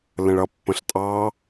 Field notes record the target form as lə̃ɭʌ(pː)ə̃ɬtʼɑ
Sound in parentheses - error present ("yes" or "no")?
no